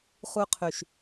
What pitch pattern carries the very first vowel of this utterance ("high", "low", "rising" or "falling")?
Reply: high